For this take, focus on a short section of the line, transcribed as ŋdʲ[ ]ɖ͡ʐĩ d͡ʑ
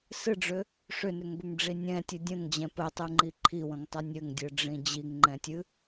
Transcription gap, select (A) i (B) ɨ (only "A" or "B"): B